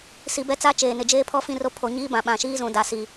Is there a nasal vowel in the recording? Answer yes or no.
yes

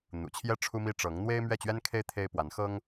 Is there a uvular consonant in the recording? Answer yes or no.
no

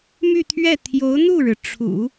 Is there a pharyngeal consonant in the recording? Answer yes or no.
no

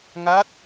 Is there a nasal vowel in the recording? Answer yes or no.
no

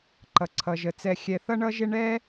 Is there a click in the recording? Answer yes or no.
yes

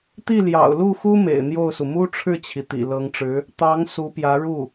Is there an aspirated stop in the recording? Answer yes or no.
yes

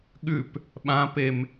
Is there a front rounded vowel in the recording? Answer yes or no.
no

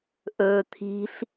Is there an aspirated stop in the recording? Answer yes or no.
yes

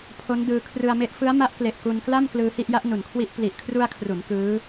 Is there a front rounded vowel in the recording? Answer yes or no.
no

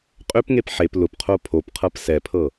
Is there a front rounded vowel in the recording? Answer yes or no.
yes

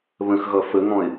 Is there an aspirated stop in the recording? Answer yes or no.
no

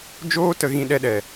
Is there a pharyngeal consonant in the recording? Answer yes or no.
no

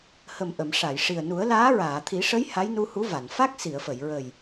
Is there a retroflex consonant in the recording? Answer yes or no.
yes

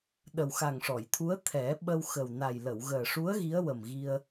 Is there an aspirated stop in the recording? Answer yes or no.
yes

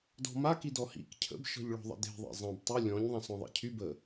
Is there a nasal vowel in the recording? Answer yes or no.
yes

